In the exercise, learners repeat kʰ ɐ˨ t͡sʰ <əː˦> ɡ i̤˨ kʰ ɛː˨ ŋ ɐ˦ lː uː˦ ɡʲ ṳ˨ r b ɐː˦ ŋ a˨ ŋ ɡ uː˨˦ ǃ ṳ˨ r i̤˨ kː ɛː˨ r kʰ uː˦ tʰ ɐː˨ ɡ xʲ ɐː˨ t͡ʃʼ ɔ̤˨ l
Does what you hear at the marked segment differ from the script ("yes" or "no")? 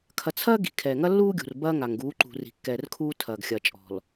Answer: yes